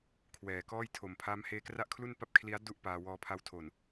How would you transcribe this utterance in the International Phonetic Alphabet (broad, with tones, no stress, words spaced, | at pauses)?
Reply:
kʰwɛː˨˩kɔː˥˩j tʰo˨˩m pʰaː˦˥mheː˦˥kra˥˩ʔkʰlu˥˩n pa˥˩p̚kʰli˦˥a̯du˥˩ʔ paː˧wɔː˧pʰa˦˥wtʰo˨˩n